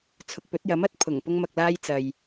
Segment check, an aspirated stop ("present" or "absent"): present